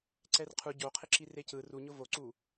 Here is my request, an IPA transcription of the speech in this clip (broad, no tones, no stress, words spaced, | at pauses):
ǀɛrqʰu ɟoqʰɪǁi recɯ ruɲʊ voǀu